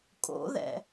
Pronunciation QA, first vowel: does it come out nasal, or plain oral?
oral